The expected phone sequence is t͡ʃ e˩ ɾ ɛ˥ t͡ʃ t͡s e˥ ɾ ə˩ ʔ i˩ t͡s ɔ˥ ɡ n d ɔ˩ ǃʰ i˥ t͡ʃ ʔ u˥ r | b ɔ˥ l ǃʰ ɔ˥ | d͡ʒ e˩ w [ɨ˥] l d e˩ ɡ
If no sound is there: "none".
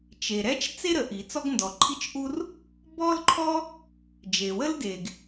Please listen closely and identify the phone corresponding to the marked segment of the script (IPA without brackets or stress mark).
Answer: ə˥